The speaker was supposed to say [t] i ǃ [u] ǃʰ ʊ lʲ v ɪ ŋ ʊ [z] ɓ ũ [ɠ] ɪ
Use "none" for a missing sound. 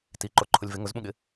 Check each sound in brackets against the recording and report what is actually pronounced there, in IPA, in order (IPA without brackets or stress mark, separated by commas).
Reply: t, o, z, ɠ